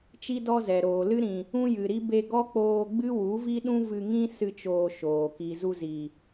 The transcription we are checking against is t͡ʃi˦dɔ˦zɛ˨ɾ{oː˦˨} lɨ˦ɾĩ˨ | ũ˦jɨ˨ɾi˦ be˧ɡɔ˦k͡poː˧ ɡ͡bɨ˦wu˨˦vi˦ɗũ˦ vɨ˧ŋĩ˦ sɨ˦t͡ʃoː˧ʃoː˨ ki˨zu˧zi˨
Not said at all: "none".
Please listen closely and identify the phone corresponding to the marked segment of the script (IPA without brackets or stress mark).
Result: oː˨